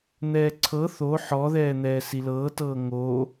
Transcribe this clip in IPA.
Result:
n̪ ɛː ǀʰ ɤ θ o ħ ɔ ð ɛː n̪ ɛː s i l ɤː t ɤː ŋ oː

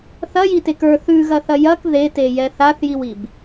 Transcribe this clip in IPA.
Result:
θ ɐ j i t e k ə˞ θ ʉ ɣ ɐ θ ɐ j ɐ k ð e t e j ɛ θ a θ j i w i b

